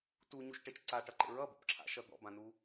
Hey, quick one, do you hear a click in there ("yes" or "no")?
yes